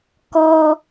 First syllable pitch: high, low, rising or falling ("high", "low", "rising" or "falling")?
high